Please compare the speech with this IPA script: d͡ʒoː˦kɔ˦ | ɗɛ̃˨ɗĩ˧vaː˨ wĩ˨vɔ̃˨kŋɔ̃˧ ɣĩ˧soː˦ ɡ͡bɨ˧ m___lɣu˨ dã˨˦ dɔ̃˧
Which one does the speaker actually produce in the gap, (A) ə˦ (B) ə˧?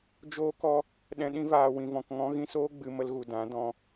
B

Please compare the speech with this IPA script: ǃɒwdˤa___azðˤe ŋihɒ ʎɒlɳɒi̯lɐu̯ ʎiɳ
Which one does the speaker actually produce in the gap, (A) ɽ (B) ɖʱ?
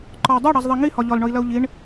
A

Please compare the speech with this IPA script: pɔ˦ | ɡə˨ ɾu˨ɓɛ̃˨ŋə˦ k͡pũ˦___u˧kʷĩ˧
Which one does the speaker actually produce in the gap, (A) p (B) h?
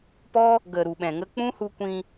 B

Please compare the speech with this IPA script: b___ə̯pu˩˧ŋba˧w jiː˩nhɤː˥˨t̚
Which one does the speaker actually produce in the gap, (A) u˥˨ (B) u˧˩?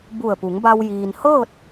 B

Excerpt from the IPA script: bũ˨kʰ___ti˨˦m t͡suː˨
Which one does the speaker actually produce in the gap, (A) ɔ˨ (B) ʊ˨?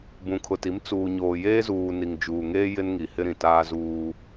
B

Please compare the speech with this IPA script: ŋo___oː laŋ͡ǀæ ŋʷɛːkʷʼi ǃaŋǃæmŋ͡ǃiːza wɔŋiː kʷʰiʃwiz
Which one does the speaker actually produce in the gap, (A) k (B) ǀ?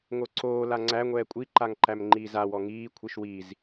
B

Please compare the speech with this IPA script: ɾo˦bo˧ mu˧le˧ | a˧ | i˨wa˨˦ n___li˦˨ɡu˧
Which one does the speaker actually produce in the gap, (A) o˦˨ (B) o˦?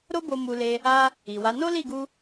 B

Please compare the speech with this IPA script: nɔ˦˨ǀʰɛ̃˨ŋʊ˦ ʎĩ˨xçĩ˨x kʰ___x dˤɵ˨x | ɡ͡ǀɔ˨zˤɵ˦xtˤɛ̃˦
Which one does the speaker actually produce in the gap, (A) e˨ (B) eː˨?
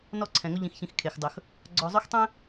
A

